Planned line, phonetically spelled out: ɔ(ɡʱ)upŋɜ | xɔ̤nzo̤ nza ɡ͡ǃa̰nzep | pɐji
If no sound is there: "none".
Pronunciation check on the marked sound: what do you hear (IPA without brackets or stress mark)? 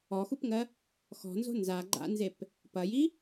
x